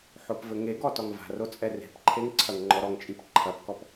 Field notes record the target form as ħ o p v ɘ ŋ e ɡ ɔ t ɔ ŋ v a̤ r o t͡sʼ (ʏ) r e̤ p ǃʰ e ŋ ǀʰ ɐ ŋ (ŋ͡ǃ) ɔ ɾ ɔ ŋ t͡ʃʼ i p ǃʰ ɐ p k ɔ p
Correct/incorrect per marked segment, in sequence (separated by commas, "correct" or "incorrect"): incorrect, correct